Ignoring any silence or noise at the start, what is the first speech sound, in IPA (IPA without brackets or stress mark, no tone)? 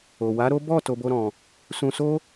o